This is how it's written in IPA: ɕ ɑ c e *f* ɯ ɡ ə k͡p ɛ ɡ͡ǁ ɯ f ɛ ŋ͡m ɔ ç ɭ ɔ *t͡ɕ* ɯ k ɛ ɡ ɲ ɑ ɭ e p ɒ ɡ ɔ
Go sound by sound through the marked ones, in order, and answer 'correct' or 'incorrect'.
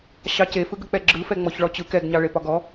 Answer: correct, correct

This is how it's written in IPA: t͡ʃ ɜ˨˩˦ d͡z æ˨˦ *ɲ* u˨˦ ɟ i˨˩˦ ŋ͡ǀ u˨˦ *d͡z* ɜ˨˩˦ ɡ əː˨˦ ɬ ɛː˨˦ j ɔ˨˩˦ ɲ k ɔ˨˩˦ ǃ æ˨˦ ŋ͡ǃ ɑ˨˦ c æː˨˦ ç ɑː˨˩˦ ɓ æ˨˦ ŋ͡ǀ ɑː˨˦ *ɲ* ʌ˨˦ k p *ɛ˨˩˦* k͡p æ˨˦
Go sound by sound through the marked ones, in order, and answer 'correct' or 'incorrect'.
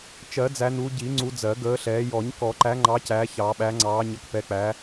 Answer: incorrect: n, correct, correct, incorrect: ɛ˨˦

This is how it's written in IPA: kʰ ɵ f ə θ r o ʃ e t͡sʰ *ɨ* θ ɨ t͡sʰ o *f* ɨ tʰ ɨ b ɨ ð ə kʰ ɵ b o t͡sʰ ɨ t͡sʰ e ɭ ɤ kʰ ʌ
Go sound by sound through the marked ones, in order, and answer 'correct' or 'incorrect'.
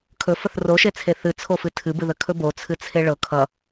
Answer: incorrect: e, correct

